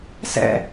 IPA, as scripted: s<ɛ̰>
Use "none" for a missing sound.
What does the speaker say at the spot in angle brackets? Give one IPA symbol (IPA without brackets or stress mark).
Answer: ɛ̰